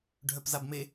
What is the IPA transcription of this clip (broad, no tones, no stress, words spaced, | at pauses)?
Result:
ɖʱœpzabme